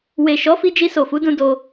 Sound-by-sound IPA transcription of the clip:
w e˨ ʃ ɔ˨˦ f i˧ d͡ʒ i˧ s o˨ f u˨˦ d ũ˧ d o˧

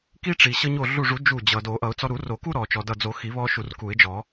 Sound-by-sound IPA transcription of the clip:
k i˦ ʈ͡ʂ i˩ ɕ ʌ˦ ɲ o˧˩ ɮ u˧˩ ʐ u˨˩˦ d͡ʒ u˧˩ d͡ʑ ʌ˩ d o˨˩˦ ʔ ʌ˨˩˦ ʊ̯ t͡s ɔ˦ ɾ u˨˩˦ r o˨˩˦ k u˦ ɾ ɔ˩ t͡ʃ ɔ˩ d ʌ˧˩ d͡z o˨˩˦ x i˨˩˦ β ɔ˦ ʃ u˧˩ r k u˨˩˦ ɪ̯ d͡ʒ ɔ˨˩˦

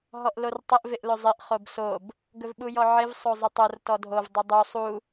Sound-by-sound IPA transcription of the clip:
ɦ ɔ ʔ l o r tˤ ɪ ʔ v ɪ ʔ l ɵ zˤ ɪ ʔ χ o b s o b | ɡ ɵ v ɓ u j ɔ ʕ ɪ v sˤ o zˤ ɪ tˤ o r t ɔ dʱ o v dˤ u dˤ u sˤ u

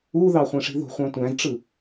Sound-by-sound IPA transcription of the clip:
u ð ɑ χʷ ẽ ʂ i̤ ð o̤ χʷ ɑ̃ tʷ æ̃ z ʈ͡ʂ ɯ

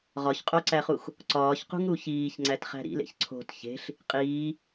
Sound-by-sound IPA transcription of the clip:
ʁ ɒ ç qʼ o ǀ æ χ u x | ǀ ɒː ç q ṳ ŋ ɾ u ç iː ç ŋ͡ǀ æ t χ æ̤ ɾ ḭ l ḛ ç ǀʰ o̤ t ç e̤ ɬ | qʼ iː

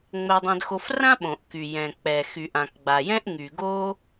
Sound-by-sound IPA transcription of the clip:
ŋ͡m ɛ˧ dˤ ɛ̃˧ d x o˧ f r ã˥ ɓ õ˩ ʔ k y˩ j ɛ̃˩ k͡p ɛ˩ x y˩ ʔ ã˩ k ɡ͡b a˩ j ɛ̃˥ ʔ ŋ y˩ ɡ o˥

